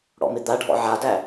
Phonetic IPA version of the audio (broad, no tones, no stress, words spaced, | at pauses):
ɽɔ̰mɪd̪aɖʱɔ̰ ʕadæ